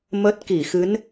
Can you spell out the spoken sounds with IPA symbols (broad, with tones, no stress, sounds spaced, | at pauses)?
m ə˦˥ t̚ k i˧˩ x ɨ˨˦ n